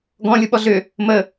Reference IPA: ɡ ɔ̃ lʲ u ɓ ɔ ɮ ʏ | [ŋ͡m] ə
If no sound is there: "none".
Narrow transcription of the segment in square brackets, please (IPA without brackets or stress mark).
m